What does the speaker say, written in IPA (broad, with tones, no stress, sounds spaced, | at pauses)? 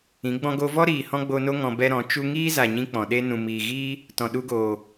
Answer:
ĩ˨˦ ɡ͡b ɔ̃˧ ɡ o˧ v ɔ˦ ɾ iː˨ h ɔ̃˦ ɡ͡b o˧ n o˦ ŋ ɔ̃˧ b ɛ˦ ɾ ɔ̃˨˦ t͡ʃ u˧ ŋ iː˦ z a˨ ɲ ĩ˦ k͡p ɔ̃˨ ɗ e˦ n ũ˨ m iː˨ ɣ iː˦ | t ɔ̃˨ ɗ u˧ ɡ oː˨